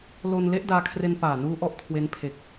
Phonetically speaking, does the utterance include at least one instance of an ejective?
no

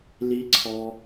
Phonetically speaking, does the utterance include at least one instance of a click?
yes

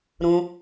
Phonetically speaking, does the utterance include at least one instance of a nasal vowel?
yes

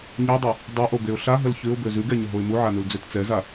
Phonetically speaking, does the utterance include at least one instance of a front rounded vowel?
yes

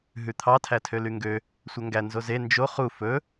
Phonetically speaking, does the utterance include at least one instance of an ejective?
no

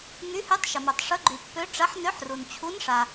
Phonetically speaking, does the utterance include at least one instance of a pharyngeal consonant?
yes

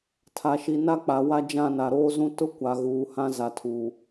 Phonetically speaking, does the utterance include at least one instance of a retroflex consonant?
no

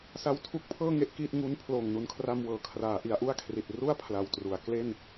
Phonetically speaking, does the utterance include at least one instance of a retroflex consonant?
no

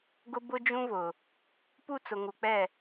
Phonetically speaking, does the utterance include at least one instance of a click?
no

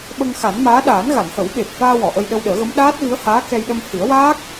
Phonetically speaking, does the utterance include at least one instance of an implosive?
yes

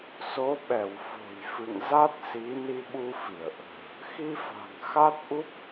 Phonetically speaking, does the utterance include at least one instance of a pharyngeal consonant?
no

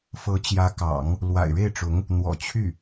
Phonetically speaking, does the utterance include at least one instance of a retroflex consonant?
yes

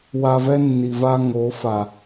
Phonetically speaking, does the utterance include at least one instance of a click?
no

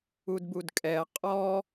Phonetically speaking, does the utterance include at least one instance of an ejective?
yes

